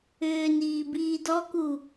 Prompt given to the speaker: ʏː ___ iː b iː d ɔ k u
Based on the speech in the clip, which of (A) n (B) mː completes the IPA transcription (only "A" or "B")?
A